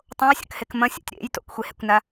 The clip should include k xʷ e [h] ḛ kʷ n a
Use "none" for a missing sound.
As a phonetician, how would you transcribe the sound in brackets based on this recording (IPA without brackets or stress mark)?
h